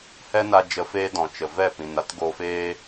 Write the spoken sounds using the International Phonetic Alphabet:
h ɛ˦ n a˧ d͡ʒ ə˧ f eː˦ d ɔ̃˨ t͡ʃ ə˨ v ɛ˦˨ p ĩ˨ n a˦ t ɡ oː˧ f eː˦

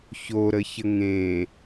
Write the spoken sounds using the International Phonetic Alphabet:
ç o ɾ ə ç ə ŋ ẽ

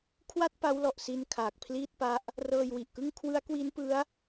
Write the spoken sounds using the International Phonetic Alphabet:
kʰ w a˥˩ t̚ p a˦˥ w l ɔ˨˩ ʔ s i˧ n kʰ aː˨˩ k̚ pʰ l iː˥˩ t̚ p a˦˥ ʔ | r ɤː˧ j w i˨˩ ʔ k ɯ˥˩ ŋ kʰ w ɯ˦˥ a̯ k w i˦˥ n p ɯ˦˥ a̯

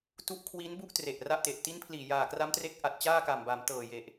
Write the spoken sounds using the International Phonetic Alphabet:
t u˦˥ ʔ kʰ w i˦˥ n b u˥˩ ʔ t r e˨˩ ʔ r a˥˩ ʔ t e˨˩ ʔ t i˦˥ n pʰ l iː˨˩ j aː˨˩ k r a˦˥ m t r e˦˥ k̚ ʔ a˨˩ t̚ t͡ɕ aː˥˩ k a˨˩ m b a˩˦ m t ɤː˨˩ j e˨˩ ʔ

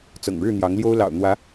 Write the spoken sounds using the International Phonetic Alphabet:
t͡s ɤ̰˨˩ ŋ ɻ ɻ̩˥˨ n̪ j ɑ˨˦ ŋ l j o˦ ʊ̯ l ɑ̰˨˩ ʊ̯ n̪ w ä˨˦

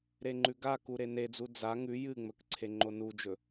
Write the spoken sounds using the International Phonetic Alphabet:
ɾ e ŋ͡ǃ ʉ ɡ a k u ɾ e n e d͡z u d͡z a ŋ ʉ j ɨ ŋ͡m ɵ k ǀʰ e ŋ͡ǃ o n u d͡ʒ ɵ

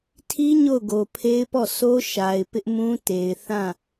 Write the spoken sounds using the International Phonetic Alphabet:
tʰ i˦ ɲ o˦˨ ʊ̯ ɡ o˨ pʰ e˦ ɪ̯ p ɔ˦˨ sʰ o˦ ʃ a˨ ɪ̯ p ɪ˦ ʔ m ũ˦ t e˨ ɪ̯ θ ã˦˨

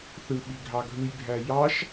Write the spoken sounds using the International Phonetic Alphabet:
θ ɯ ɓ i ɡʱ ɑ ɡʱ ɯ j bʱ æ j ɑ ʃ

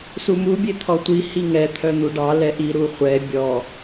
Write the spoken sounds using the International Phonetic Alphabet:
s u m u bʲ e t̪ʰ ɔ tʷ i h i ŋ ɛ t̪ʰ œ n̪ u ɖ ɑ l ɛ ʔ i ɾ u χʷ ɛ bʲ ɔ

